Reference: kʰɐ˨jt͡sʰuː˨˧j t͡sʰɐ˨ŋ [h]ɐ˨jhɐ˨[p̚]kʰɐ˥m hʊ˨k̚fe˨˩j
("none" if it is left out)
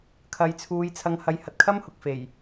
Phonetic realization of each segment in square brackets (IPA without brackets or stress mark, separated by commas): h, t̚